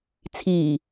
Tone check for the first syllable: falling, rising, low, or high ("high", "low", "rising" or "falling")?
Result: low